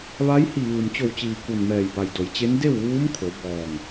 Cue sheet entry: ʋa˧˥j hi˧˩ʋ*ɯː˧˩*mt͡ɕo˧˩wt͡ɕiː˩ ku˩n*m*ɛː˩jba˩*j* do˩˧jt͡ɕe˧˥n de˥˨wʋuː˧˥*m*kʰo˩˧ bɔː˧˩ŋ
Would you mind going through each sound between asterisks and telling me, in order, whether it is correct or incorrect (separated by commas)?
incorrect, correct, correct, correct